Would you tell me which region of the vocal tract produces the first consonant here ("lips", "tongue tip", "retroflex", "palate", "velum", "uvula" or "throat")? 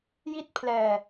palate